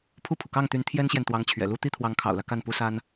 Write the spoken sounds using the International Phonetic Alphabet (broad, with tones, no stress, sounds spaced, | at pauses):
pʰ u˥˩ pʰ u˩ k ɑ˥˩ ŋ t̪ y˧˥ n t̪ʰ j ɛ˥ n ɕ j ɛ˨ n t̪ w ɑ˧˥ ŋ t͡ɕʰ ɥ ɛ̰˨˩ l u˥ t̪ i˥ t̪ʰ w ɑ˧˥ ŋ kʰ ɑ̰˨˩ ʊ̯ l ä˦ k a˥˩ n p u˥ s a˥ n